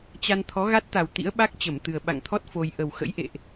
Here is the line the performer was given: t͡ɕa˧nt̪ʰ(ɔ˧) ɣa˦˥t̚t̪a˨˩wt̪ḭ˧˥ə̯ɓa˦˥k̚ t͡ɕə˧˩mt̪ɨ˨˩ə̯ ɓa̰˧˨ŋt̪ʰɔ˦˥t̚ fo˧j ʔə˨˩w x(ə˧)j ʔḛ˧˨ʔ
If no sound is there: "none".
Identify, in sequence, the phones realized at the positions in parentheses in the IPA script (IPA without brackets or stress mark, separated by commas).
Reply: ɔ˨˦, ə̰˧˥